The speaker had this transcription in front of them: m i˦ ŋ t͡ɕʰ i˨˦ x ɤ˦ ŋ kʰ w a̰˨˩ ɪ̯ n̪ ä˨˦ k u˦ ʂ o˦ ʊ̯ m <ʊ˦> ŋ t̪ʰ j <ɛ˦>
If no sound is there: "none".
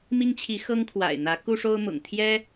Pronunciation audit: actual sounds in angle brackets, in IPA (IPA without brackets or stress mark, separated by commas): ʊ̰˨˩, ɛ˦